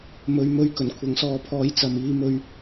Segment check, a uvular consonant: absent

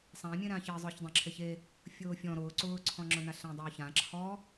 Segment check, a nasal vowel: present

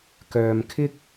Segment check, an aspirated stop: present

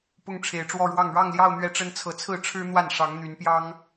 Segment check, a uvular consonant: absent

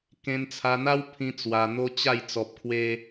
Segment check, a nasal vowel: present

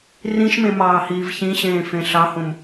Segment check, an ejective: absent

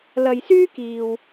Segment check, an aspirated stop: absent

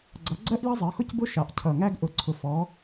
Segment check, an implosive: absent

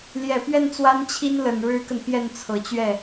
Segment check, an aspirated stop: present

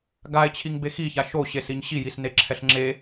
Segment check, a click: present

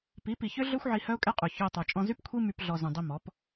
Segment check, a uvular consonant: present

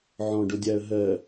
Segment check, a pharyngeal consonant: present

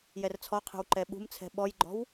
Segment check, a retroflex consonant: absent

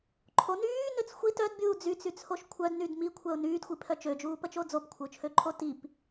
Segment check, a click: present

